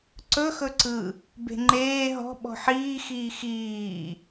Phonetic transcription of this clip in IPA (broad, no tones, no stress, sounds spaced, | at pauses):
ǀ ɵ x ɵ ǀ ɯ | b e̤ ŋ͡ǃ eː ɦ ɔ̤ ɓ ɔ̤ ħ iː x iː x iː